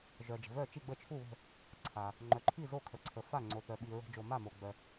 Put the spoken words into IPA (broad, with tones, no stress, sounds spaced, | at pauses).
ʒ œ˩ d͡ʒ ə̤˩ v œ˧˩ t͡ʃ i˧˩ ɡ͡b ə˧˩ t͡ʃʰ u˧˩ β ə̤˧˩ | ǀʰ a˩ | ŋ͡ǃ œ˩ ǃʰ i˧˩ z o˧˩ kʰ ə˩ ǀʰ ə˩ f a˧˩ ŋ͡ǀ o˩ θ œ˩ ɓ i˩ ɹ o̤˩ d͡ʒ o˩ m a˧˩ m o˩ ɡ͡b œ˩